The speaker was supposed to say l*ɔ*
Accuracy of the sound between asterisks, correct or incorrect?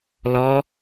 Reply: correct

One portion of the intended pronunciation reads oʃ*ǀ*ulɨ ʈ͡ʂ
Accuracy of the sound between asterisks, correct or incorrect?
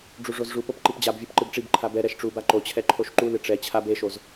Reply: incorrect: ǃ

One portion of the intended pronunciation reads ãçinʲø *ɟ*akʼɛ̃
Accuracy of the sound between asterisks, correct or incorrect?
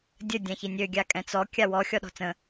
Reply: incorrect: ɡʲ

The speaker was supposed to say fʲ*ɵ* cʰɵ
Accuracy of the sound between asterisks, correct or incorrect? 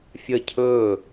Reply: incorrect: ə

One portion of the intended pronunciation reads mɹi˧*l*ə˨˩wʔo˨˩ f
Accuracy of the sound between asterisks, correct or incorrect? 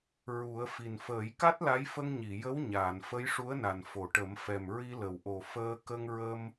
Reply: correct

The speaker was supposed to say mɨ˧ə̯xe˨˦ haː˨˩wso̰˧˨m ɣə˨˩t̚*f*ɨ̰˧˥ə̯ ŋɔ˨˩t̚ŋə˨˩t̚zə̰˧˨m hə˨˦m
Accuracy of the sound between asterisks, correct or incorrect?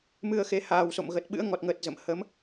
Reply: incorrect: ɓ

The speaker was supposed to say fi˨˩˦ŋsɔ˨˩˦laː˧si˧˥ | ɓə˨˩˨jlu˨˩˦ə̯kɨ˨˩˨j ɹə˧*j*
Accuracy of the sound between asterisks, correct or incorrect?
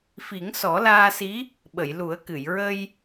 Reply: correct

